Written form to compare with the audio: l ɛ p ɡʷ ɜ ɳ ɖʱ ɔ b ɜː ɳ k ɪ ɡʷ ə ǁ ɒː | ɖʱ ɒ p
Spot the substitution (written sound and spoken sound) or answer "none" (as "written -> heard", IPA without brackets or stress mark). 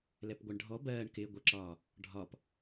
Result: none